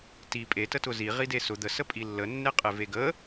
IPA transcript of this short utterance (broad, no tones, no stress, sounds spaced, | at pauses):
t i pʼ e t ə t ʊ z i ʁ i d e s ʊ d̪ ə s ə pʼ i lː ə nː e qʼ e v e ɡ ə